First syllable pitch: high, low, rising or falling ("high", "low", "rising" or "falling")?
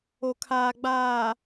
low